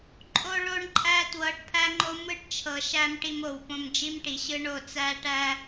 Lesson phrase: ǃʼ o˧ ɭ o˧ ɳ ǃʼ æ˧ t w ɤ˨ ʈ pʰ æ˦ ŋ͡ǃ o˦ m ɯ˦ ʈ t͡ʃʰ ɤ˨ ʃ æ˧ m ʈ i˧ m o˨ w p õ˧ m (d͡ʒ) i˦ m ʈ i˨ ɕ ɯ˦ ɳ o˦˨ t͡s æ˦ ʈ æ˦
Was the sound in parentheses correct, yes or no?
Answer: yes